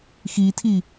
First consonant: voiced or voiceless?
voiceless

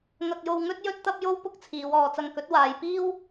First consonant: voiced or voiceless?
voiced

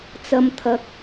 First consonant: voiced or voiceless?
voiceless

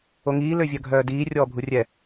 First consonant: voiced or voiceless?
voiced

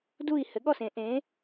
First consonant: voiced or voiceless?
voiced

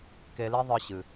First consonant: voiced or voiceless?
voiceless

